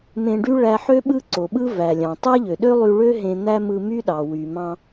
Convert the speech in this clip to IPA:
m ẽ˧ ɖ y˥ ɭ æ˧ ħ ø˥ ɓ ɯ˥ ǀ o˩ ɓ ɯ˥ v æ˩ lʲ ɑ̃˩ tˤ æ˥ ʎ ø˩ ɗ ø˥ lˠ y˧ ɭ ø˥ ɦ ẽ˧ n̪ æ˥ m ɯ˧ m y˥ ɗ ɑ˩ w y˩ m ɑ̃˧

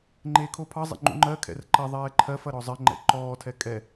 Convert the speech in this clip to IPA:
ŋ͡ǃ eː kʰ o pʰ ɑ zˤ ḛ ŋ͡ǃ ṵ ŋ͡ǃ ɜ kʰ ɛ̰ r ǃ ɐ ðˤ ɛː ǃʰ ɜ f ɐ ɾ ɔ zˤ ɜ ŋ͡ǃ ɛ̰ ǃ ɔː tʰ ɛ kʼ ɛ

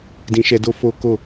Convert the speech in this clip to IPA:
d ĩ˧ ʃ ɛ˧ d o˦ f o˦ k o˦˨

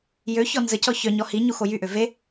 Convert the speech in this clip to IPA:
j ø ç ɔ n z ə c ɔ ç œ ɲ ɔ h i ɲ u x o j y ʔ ø v e

